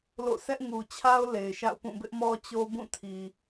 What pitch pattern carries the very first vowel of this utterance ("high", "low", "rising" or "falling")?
falling